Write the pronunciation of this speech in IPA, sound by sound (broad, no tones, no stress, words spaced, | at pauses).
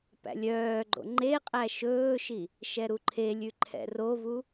pæ̰lʲœːɡ͡ǃo̰ ŋ͡ǃeqʼæ ʃɵːʃi | ʃɛɾuǃʰelʲʉ ǃʰɛ̰rovu